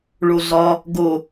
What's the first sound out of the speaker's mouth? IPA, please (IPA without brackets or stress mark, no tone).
ɭ